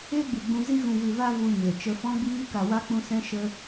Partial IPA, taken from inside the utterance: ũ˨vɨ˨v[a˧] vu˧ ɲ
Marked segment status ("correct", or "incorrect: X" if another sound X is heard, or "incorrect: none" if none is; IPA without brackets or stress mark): correct